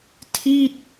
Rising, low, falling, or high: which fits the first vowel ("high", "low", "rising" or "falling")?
falling